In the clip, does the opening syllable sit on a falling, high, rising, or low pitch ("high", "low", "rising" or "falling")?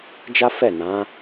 high